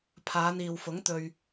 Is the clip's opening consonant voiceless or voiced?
voiceless